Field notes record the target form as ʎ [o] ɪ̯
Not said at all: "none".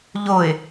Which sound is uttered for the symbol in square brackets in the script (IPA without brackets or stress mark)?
o